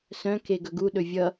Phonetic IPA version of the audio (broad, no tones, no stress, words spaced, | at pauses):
sœ̃ keɡɵɡu ɗɵvʲʌ